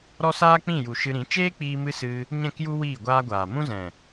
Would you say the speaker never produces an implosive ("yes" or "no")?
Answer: yes